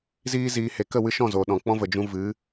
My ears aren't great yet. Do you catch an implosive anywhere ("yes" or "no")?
yes